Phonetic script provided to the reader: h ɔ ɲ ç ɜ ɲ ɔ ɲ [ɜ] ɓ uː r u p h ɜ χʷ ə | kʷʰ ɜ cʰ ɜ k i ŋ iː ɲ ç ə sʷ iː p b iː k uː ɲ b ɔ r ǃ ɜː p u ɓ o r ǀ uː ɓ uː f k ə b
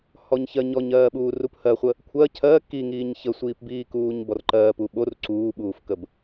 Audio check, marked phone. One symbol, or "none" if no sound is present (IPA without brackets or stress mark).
ɜː